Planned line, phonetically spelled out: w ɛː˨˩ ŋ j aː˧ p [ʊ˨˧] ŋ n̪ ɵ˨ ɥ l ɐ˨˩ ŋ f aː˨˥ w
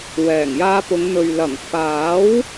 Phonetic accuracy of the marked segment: correct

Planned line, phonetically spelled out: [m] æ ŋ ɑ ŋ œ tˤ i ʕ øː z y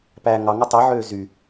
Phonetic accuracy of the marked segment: incorrect: p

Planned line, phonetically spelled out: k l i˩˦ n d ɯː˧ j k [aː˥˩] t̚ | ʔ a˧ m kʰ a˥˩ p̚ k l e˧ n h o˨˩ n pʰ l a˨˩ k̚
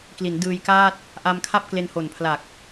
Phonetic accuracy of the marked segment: correct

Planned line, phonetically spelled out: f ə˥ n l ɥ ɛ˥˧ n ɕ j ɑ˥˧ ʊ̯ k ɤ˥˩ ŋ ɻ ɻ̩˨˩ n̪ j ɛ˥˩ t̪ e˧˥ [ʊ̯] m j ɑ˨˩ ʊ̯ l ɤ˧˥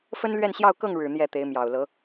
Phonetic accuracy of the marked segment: incorrect: ɪ̯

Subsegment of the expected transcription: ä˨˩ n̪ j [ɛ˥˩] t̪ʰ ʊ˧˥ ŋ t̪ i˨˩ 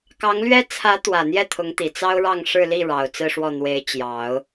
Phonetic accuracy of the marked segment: correct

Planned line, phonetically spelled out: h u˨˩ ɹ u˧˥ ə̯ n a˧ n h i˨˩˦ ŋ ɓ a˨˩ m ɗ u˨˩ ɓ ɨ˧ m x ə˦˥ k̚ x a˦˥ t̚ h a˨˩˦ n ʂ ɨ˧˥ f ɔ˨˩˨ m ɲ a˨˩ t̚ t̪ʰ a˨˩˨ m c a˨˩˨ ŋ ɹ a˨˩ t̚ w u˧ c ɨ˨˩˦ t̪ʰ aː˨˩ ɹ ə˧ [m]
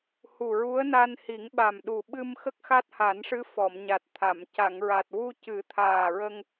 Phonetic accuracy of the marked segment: incorrect: ŋ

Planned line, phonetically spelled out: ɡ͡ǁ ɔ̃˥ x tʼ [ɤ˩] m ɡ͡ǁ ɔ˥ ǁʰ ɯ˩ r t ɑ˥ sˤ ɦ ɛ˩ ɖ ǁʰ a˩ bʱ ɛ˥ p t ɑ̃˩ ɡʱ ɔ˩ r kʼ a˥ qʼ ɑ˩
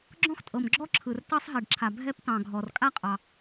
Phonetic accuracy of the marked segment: correct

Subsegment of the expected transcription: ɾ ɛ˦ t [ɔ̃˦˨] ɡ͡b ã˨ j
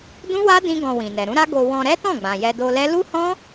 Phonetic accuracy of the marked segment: correct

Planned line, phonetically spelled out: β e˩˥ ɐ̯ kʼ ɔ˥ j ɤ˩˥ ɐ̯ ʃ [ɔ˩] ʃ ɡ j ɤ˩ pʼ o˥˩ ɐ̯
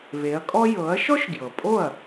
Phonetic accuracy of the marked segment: incorrect: ɔ˥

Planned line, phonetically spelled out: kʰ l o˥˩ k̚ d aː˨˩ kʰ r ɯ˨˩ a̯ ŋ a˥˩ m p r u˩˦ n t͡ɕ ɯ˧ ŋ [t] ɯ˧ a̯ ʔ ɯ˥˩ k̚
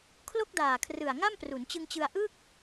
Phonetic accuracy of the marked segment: incorrect: t͡ɕ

